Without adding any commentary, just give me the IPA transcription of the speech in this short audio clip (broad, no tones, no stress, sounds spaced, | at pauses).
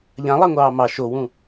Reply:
ʎ ã lˠ a ŋʷ ɑː m ɑ ʃ o w ũ